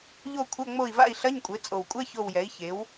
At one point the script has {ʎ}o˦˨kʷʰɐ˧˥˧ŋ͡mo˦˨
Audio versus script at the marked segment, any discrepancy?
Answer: no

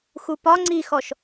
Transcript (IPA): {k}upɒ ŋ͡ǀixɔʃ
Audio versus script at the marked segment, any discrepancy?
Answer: yes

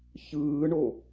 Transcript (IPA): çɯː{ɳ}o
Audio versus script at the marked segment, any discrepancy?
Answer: no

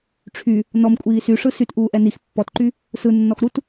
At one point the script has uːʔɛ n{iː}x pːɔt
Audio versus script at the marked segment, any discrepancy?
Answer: yes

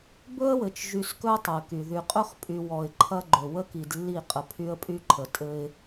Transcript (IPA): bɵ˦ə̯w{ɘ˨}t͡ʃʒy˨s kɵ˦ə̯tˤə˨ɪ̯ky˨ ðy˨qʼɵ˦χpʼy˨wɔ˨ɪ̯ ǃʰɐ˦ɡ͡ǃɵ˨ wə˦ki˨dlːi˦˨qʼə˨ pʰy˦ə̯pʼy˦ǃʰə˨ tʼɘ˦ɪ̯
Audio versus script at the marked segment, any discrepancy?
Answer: no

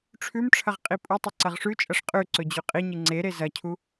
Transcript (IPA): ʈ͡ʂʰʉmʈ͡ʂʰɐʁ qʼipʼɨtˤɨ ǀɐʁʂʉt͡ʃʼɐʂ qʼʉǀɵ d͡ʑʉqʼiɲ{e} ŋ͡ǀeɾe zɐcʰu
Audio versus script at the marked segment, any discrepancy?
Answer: yes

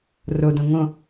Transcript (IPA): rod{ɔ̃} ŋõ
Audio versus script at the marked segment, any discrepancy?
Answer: yes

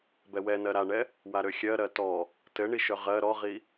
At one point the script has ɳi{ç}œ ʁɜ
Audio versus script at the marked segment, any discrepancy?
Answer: yes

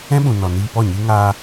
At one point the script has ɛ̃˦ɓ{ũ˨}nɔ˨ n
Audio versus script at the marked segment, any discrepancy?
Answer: no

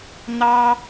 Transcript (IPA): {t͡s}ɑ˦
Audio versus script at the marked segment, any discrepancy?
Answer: yes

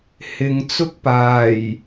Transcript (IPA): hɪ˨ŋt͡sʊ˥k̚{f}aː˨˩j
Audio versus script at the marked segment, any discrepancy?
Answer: yes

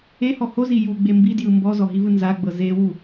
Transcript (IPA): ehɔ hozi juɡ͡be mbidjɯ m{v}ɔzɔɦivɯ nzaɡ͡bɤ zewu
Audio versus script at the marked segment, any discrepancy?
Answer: yes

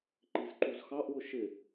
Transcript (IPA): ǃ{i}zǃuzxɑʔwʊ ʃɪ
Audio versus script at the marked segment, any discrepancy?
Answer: no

